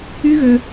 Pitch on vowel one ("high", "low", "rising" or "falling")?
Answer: high